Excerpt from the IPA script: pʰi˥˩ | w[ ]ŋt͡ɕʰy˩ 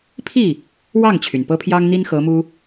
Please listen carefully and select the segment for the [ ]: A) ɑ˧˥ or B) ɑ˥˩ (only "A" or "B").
B